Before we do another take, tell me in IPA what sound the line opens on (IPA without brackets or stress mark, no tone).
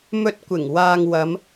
m